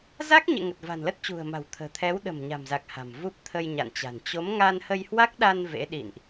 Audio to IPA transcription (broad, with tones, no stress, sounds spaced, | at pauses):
z a˦˥ k̚ ɲ ḛ˧˨ ŋ ə˨˩ t̚ v a̤˨˩ n l ə˦˥ t̚ t͡ɕ ṳ˨˩ ə̯ m a̤˨˩ w t̪ʰ ə̤ː˨˩ t̪ʰ ɛ˨˦ w ɗ ə̤˨˩ m ɲ a̤˨˩ m z a˨˩ k̚ h a̤˨˩ m v u˦˥ p̚ t̪ʰ ə˧ j ɲ a̰˧˨ n t͡ɕ a̤˨˩ n t͡ɕ o˨˦ m ŋ a˧ n h ə˧ j h w a˦˥ k̚ ɗ a˧ n v ḛ˧˥ ɗ ḭ˧˨ n ʔ